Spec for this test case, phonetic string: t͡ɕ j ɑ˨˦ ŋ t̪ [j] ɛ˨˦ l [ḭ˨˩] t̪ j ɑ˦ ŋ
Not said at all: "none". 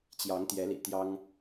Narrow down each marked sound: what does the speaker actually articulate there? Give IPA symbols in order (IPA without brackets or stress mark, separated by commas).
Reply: j, ḭ˨˩